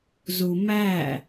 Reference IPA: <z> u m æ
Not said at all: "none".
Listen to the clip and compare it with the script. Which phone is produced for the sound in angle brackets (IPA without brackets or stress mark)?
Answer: z